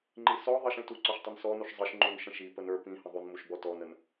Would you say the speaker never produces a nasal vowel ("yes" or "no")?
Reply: no